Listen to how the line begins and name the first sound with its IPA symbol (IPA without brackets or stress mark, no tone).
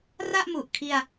r